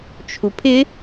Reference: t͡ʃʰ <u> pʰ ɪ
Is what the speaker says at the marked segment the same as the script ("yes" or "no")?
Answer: yes